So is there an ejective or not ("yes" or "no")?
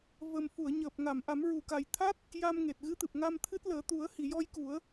no